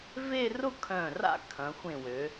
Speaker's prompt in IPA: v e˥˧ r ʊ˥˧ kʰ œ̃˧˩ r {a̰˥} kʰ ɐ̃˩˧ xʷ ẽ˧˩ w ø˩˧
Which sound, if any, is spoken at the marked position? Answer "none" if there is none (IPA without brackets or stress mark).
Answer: a̰˥